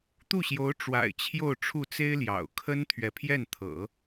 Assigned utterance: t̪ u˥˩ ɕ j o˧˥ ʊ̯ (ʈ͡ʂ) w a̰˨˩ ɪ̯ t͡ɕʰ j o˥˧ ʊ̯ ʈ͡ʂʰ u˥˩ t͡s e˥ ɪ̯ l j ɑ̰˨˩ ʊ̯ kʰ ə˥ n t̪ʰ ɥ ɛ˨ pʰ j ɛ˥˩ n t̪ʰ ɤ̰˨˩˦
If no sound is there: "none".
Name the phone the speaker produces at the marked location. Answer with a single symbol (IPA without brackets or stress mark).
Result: ʈ͡ʂ